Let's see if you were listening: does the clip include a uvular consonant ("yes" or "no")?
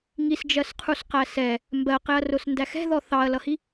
yes